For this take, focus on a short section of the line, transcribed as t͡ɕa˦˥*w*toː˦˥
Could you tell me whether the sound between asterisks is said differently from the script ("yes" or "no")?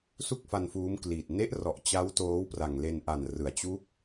no